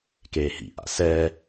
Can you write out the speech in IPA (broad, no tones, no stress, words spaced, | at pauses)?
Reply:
keːhḭʔa̰ sɛː